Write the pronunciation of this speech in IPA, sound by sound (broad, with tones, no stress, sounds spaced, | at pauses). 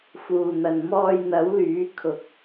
f uː˨ n̪ ɐ˨ n m ɔː˧ j n̪ ɐ˨˥ w l yː˨˥ kʰ ʊ˨ k̚